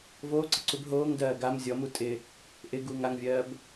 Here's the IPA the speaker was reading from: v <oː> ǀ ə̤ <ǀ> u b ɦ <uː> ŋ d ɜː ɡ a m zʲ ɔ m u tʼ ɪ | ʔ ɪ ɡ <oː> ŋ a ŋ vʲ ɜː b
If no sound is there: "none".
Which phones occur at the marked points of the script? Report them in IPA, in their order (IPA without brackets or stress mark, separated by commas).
oː, ǀ, oː, uː